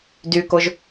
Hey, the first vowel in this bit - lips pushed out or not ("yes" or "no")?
yes